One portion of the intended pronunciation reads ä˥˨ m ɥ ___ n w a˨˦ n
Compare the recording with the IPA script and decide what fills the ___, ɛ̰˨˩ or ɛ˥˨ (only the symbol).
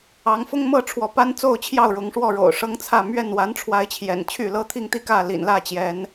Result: ɛ˥˨